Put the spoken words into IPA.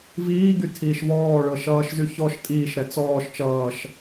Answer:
v iː ɡ y tʰ iː ʃ v ɔː ɭ ɤ ʃ ʌː ʃ z y ç ɔ ʃ tʼ iː ʃ ɾ ɛ t͡s ɔː ʃ t͡ʃ ʌː ʃ

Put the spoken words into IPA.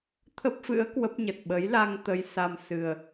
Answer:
t̪ʰ ə˦˥ p̚ f ɨ̰˧˥ ə̯ k w ə˦˥ p̚ ɲ ə˨˩ t̚ ɓ ə˨˦ j l a˧ ŋ t̪ ə˧ j s a˧ m s ɨ˨˩ ə̯

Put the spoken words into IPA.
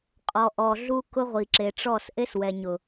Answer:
qʼ ɔ˨ ʔ ɔ˨ ɮ u˦ k ʊ˦ ʁʷ i˨ ǁ e˨ ʈ͡ʂ ɔ˦˨ s ʔ e˦ s w ɛ˨ ɲ ʊ˨

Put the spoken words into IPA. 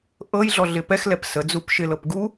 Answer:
ʔ ɤ j ɮ ɔ ɮ ɪ p ɛ x l ɛ p s ə d͡z u p ʃ ɪ l ɤ p ɡ u

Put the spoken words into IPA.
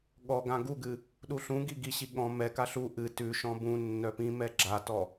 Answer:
ɠ ɔ ɡ ã ɡ u ɡ ɨ | ɗ u ɬ ũ ɡ i ɡ i ɕ i ɠ ɔ̃ m ɛ k a ɬ u ʔ ɨ t ʉ ʃ ɔ̃ b ũ nː œ p ĩ m ɛ ɡ͡ǁ a t ɔ

